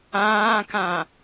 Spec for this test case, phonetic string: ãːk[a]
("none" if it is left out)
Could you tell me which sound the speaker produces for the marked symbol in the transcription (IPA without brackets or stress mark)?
ã